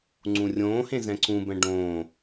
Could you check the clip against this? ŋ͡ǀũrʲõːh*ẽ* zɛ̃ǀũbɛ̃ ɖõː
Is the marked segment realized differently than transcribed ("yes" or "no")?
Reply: no